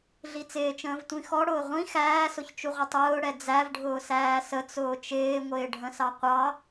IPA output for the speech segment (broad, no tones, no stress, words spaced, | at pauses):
ɮit͡sɪːt͡ʃə̃ːv tʷĩxɔɽʊː ʁʷĩ xæːsʊçt͡ʃuʁʷɪ tˤʊːɽɛ d͡zævɖʱʊː sæːsət͡sʊː t͡ʃɪːŋʷɪːɖʱə̃sɑ qʷɑ